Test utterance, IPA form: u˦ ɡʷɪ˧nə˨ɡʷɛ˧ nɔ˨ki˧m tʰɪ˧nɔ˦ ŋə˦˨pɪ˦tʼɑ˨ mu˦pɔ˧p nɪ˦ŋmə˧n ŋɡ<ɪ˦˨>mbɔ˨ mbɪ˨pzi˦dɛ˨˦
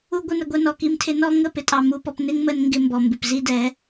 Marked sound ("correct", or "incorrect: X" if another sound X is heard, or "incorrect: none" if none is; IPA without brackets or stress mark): incorrect: ɪ˦